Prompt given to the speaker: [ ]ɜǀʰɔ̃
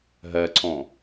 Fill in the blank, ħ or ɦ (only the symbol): ɦ